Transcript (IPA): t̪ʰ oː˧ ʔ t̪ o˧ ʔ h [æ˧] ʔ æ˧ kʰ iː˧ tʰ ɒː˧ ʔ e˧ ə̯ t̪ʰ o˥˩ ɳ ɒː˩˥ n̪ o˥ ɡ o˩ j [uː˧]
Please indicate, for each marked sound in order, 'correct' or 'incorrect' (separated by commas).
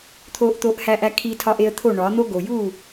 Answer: correct, incorrect